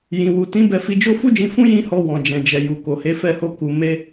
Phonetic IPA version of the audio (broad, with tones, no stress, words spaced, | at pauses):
jĩ˨wu˨tĩ˨˦ bɛ˧fi˧d͡ʒo˦ fu˦d͡ʒĩ˧fũ˦ jĩ˦hɔ˧ wɔ̃˨ d͡ʒɛ̃˨d͡ʒɛ˨ju˨ ko˨he˨˦fɛ˧ho˧ ku˧ me˧